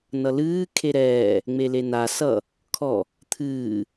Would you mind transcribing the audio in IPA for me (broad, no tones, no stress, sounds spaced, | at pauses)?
n ʌ l ɨː kʰ e ɾ ɛː | ŋ͡m e l e n a s ʌ | kʰ ɔ | t̪ʰ ɨː